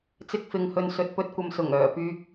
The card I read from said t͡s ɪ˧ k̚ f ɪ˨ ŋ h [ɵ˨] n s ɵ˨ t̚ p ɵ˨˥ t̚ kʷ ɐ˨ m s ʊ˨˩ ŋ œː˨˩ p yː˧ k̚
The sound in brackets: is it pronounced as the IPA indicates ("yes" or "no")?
yes